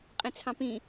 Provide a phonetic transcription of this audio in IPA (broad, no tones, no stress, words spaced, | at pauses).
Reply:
qʼẽt͡sʰɑ̃pĩ